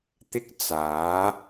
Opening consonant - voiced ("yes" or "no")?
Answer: no